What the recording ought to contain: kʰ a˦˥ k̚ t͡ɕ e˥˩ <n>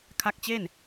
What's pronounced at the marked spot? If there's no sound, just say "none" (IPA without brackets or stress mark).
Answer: n